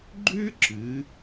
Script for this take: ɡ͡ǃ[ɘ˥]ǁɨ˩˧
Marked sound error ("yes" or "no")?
yes